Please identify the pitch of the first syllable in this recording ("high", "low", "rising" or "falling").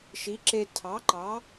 rising